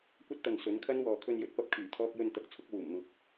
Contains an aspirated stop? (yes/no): yes